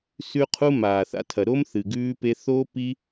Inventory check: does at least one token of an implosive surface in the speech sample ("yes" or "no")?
no